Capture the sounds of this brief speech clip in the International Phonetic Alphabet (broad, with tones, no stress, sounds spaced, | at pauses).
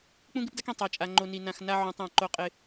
k͡p ũ˦ ɡ ɪ˦ p d a˦ k ĩ˨ tˤ a˨ t͡ʃʼ a˨ ŋ͡ǃ o˨ n i˨ n ã˨ x n a˦ ʕ ũ˨ tˤ ã˦˨ ǃ o˦ qʼ ɪ˦